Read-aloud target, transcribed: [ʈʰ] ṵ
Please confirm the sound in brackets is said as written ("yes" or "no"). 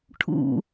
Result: yes